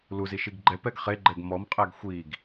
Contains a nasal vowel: no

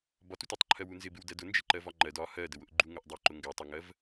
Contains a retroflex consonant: no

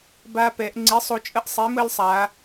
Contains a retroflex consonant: no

